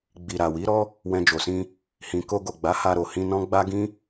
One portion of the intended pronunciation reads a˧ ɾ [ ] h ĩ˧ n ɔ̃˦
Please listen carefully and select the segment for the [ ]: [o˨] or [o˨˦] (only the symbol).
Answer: o˨